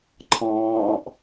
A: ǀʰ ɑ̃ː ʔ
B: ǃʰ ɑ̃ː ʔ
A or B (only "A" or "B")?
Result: B